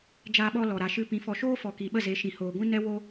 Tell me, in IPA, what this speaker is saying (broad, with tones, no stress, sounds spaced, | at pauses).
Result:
d͡ʒ aː˦ ɓ ɔ˦ l ɔ˨ ɾ a˨ ʃ ɨ˧ p ĩ˨˦ f ɔ˧ ʃ oː˦ f ɔ˨ k i˨ ɓ ə˦˨ z e˨˦ ʃ ĩ˨ h oː˨ ɡʷ ĩ˦ n ɛ˦ w oː˧